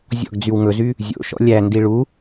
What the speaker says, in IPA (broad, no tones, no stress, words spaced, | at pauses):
zʲɔ̰ɡd͡zyw ŋɵzy | zʲo̰ʃɔ̰ lʲændi ɭu